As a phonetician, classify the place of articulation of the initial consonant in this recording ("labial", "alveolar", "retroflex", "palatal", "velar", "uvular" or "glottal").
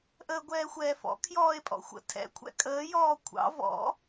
glottal